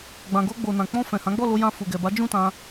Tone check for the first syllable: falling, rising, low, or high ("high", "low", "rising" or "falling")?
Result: low